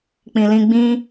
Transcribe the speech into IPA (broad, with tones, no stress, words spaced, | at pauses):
k͡pĩ˨lĩ˧ɡ͡bĩ˦